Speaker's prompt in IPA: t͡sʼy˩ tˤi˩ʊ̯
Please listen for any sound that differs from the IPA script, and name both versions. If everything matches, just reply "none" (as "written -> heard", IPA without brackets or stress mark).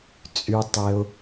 i˩ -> e˩